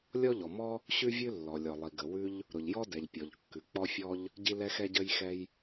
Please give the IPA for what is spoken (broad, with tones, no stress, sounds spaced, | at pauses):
lʲ ɔ˥ ʎ ɔ˩ m ɔ˥ | ɕ ʉ˥ vʲ ʉ˥ lː ɔ˩ lʲ ɔ˩ lˠ i˩ ɡ ə˩ w ʉ˥ ʎ | ɾ ʊ˩ ʎ j ɔ˥ d ɛ˩ ʎ pʲ ɔ˩ ʎ kː ʉ˩ k͡p ɔ˥ fʲ ɔ˥ ʎ | ɟ i˥ l ɛ˥ x ɛ˥ ɟ ə˥ j x ɛ˥ j